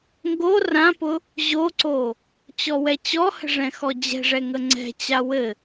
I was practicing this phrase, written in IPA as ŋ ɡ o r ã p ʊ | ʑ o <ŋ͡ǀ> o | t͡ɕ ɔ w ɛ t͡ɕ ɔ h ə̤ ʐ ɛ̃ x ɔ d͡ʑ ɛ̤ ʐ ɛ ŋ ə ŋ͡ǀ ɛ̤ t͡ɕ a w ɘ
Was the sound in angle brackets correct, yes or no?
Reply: no